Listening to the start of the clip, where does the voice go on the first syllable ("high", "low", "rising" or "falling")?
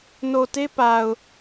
low